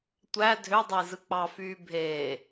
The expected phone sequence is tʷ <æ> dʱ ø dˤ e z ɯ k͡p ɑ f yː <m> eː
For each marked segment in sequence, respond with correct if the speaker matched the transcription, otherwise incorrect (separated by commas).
correct, incorrect